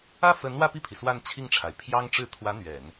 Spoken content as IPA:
ä˥˩fə˧˥n wä˥˧pi˥˩pʰi˩ swa˥˧nt͡ɕʰi˥˩ŋʈ͡ʂʰa˩ɪ̯ pʰjɑ˥ŋʈ͡ʂɻ̩˥˩ t̪ʰwä˧˥ n̪ɥɛ˨˩˦n

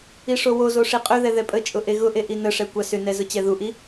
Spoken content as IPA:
iʂowozo ʂiqʼʏðɛ ðɛpʼət͡ʃʼʊ ʔeɣʊʔe ʔinəʂɛ kʷɑsʏnɛ zʊt͡ɕɛðuʔi

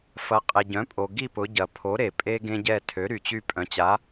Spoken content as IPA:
fɐ˩˥qʼe˩ ɟœ̃˩˥pʼo˩ ɡi˦˨pʊ˩˧ɟɐ˩ pʰo˩˥ ɾe˩pʼe˦ ɡẽ˦ɟɛ˦˨ tʰø˩˥ɾy˩t͡ɕy˦˨ pʼœ̃˩˧t͡ɕa˩˥

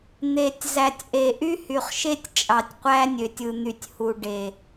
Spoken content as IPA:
n̪e˨tʲ zæ˨tʲʔe˨ ʔy˦hy˨χʃe˦tʲ t͡ʃʼɑ˨tʲqʷæ˦nʲø˨tʲɯ˨ n̪y˨tʲhu˨ ɖe˨

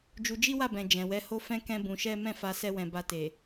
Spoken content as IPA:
d͡ʒu˧d͡ʒi˦wa˦˨bɛ̃˨ d͡ʒɛ̃˨wɛ˨˦ ho˦fɛ̃˦ kɛ̃˦bũ˧ʃɛ˦ mɛ̃˦˨fa˧ sɛ˦wɛ̃˧ ba˧te˨

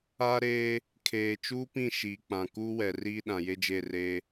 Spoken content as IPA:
a˦ɾeː˦ | kʰeː˨t͡ʃuː˦pĩ˦˨ ʃiː˨k͡pã˨kuː˦wɛ˨ riː˦ɗã˨je˦d͡ʒe˦˨ reː˦

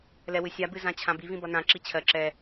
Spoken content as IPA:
lɛwɨsʲa bɨzãt͡ɕʰãbi vĩbʌnã ǁit͡ɕʰɜ ǁɛ

